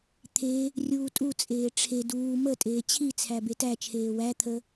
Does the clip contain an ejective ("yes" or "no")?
yes